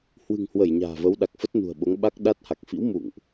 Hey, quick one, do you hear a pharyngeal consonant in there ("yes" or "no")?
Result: no